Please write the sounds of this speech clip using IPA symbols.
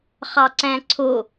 χ ɑ ǀ æ̃ ǀʰ o

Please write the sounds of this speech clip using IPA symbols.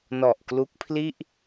n ɔ˨˩ ʔ k l u˦˥ k̚ pʰ l i˥˩ ʔ

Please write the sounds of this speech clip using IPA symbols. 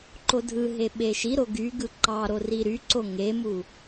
ǃ o dʱ ɯ ɦ e ɓ e ʃ i ɾ o ɡ y ɡ ɯ ǃ ɑ ɾ o r i ɾ y ǀ o ŋ e m u

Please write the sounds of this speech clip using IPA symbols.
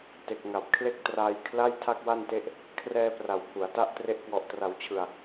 t e˨˩ k̚ ŋ a˨˩ p̚ kʰ l e˥˩ k̚ t r aː˧ j kʰ l a˥˩ j tʰ a˥˩ k̚ w a˥˩ n t e˦˥ ʔ | kʰ r ɛː˧ p r a˩˦ w pʰ u˩˦ a̯ t a˥˩ ʔ t r e˦˥ ʔ k w ɔ˨˩ ʔ t r a˩˦ w t͡ɕʰ ɯ˨˩ a̯

